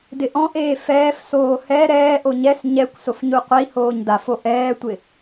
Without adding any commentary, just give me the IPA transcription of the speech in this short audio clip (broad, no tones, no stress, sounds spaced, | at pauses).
d ɪ ʔ ɔ̃ ʔ eː f ɛː f s oː h ɛ ɾ ɛː ʔ o ɲ ɛ s ɲ ɛ kʷ s ʊ f ɲ u qʷ i h oː ɲ d a f o ʔ ɛː tʷ ɪ